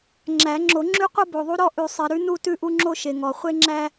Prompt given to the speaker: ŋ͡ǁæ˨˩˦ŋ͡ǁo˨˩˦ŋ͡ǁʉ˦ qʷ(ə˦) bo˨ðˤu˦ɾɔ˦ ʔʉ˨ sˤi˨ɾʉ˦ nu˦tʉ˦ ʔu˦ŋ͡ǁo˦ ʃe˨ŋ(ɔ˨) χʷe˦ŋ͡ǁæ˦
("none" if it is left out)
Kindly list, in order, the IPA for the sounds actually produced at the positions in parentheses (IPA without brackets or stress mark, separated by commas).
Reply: ə˦, ɔ˨